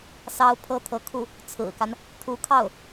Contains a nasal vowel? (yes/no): no